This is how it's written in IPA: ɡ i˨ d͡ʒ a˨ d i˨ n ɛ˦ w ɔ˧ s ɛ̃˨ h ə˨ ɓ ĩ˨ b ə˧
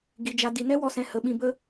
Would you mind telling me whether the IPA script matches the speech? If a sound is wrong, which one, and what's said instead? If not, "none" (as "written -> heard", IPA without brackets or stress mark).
none